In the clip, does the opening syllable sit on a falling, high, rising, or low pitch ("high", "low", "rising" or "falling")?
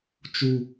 low